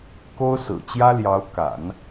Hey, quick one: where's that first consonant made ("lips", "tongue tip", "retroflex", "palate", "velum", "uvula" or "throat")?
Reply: velum